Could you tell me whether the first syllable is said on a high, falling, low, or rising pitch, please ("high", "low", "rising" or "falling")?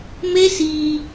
high